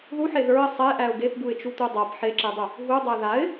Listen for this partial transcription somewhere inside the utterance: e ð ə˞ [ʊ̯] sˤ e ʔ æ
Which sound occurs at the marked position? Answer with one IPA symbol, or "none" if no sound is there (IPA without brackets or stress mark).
ɪ̯